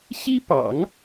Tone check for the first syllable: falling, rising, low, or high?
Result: high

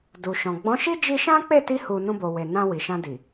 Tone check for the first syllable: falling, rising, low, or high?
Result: low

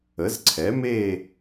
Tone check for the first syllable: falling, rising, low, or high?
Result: rising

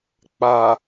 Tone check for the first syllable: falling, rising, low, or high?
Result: low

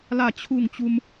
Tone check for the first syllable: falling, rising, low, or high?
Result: falling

